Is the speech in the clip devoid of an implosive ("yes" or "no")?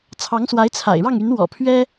yes